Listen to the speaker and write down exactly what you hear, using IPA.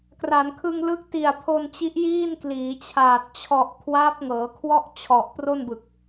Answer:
k r a˩˦ n kʰ ɯ˧ ŋ l ɯ˦˥ k̚ t i˨˩ a̯ pʰ o˧ n t͡ɕ i˦˥ ʔ j iː˥˩ n k l iː˩˦ t͡ɕʰ aː˨˩ t̚ t͡ɕʰ ɔ˨˩ ʔ kʰ w aː˦˥ p̚ ŋ ɤː˩˦ kʰ w ɔ˥˩ ʔ t͡ɕʰ ɔ˨˩ ʔ p r o˥˩ n b ɯ˨˩ k̚

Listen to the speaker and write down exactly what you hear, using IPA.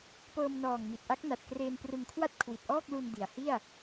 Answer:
p ɤː˧ m n ɔː˨˩ ŋ m i˨˩ t̚ ʔ a˦˥ k̚ n a˨˩ t̚ k r eː˧ n p r ɯ˧ ŋ kʰ w a˥˩ t̚ kʰ w i˨˩ t̚ ʔ ɔː˥˩ k̚ l u˧ n d i˩˦ a̯ h i˥˩ a̯

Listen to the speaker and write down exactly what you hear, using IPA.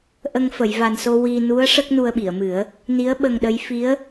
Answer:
ʔ ə˧ ŋ f ə˨˩˨ j v a˨˩ n s o˧ w i˧ n u˧˥ ə̯ ʂ ə˦˥ k̚ n u˧ ə̯ ɓ i˨˩˨ ə̯ m ɨ˨˩˦ ə̯ | n i˧˥ ə̯ ɓ ə˧ ŋ ɗ ə˧˥ j f i˧˥ ə̯

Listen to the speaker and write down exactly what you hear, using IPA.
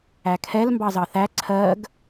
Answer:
æ kʰ ɛ l m b ɑ z ɑ θ æ ǀʰ ɜ ɡ

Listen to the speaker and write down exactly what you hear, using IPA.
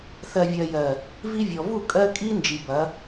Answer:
θ ɜ˨ vʲ ɜ˨ j ɜ˨ | v i˦ vʲ ɔ˨ v u˦˨ kʼ ɜ˦ kʼ i˦ n d͡ʒ i˨ b ɐ˨˦

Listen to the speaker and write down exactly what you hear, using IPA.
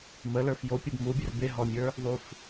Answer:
m ə l ə˞ f j o pʲ o b m u bʲ ə r b e ɦ ɔ mʲ ə˞ | ðˤ u f

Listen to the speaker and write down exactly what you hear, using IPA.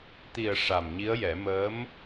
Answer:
t̪ i˨˩ ə̯ ʂ a˨˩ m ɲ i˧˥ ə̯ j ɛ˨˩˦ m əː˧˥ m

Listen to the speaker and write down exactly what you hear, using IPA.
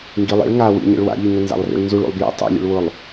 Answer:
ŋ ɡ i lˠ ḭ ɭ ŋ a w ḭ ɲ ḭ ɭ w a̰ ʎ i ŋ ʊ n z a̰ lˠ r ḭ ɭ n z u ɭ ṵ lˠ b j ḭ tˤ ḭ lʲ ṵ ɭ w ʊ lˠ

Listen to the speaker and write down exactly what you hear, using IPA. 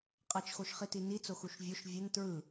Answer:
qʼ ʌ t͡ʃ x o ʃ χ i t i n i t͡s o x u ʃ vʲ o ʃ vʲ ʌ n t ɹ ɯ

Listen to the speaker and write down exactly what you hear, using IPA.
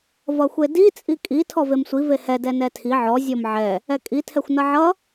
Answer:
v ʌ xʷ e d i t͡sʼ i kʼ i tʰ ɔ v e m sʷ i v e h ɛ d ɛ n ɛ tʰ i ʕ ɔ zʲ ɔ m ʕ ɛ | ɛ kʼ i tʰ ɛ xʷ n ʌ ʕ ʌ

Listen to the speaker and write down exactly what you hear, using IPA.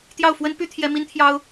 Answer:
t̪ j ɑ˥˩ ʊ̯ f w ə˥ n p y˥ t̪ʰ j ɛ˥ m i˥ n t̪ʰ j ɑ˥ ʊ̯

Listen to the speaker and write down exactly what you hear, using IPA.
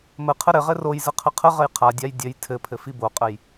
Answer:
m ə qʰ ə ɾ ɘ ʁ ɘ r o j z ə qʰ ə qʰ ə ʁ ə j qʰ a dʲ a j dʲ ɘ j tʰ ɘ pʰ ɘ f i b o qʼ ə j

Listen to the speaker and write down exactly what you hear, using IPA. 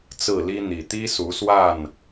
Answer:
t͡s ɹ̩˥˨ l i˦ n̪ i˨˩ t̪ i˦ s u˨˦ s w a˥˨ n

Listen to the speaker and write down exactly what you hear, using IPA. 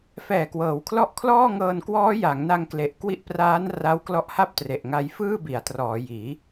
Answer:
f ɛː˨˩ k w ɤː˩˦ w kʰ l ɔ˦˥ ʔ kʰ l ɔː˥˩ ŋ ɤː˧ n k w ɔː˦˥ j a˩˦ ŋ n a˧ ŋ k l e˨˩ ʔ k w i˦˥ ʔ p r aː˦˥ n r a˦˥ w k l ɔ˦˥ ʔ h a˥˩ p̚ t r e˨˩ ʔ ŋ a˧ j f ɯː˥˩ b i˩˦ a̯ t r ɔː˩˦ j iː˩˦

